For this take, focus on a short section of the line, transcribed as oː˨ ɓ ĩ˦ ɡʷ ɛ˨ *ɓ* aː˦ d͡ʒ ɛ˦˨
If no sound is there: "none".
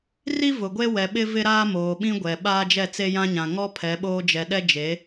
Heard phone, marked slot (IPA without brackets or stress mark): ɓ